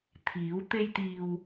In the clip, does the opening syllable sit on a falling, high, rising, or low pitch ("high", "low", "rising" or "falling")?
rising